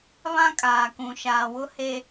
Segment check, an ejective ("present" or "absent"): present